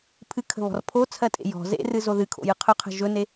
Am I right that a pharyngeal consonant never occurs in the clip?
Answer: yes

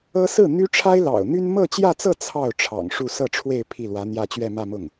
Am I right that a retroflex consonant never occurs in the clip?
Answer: no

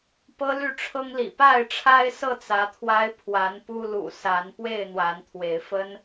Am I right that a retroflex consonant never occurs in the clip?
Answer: no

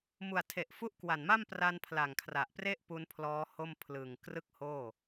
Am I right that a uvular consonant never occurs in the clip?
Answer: yes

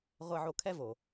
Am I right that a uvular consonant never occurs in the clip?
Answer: no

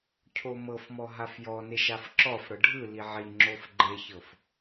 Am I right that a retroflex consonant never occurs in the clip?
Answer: no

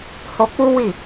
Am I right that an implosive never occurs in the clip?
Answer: yes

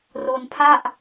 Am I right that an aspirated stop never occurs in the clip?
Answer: no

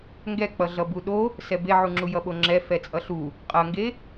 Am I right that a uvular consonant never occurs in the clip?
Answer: no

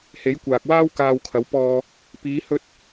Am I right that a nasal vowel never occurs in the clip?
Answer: yes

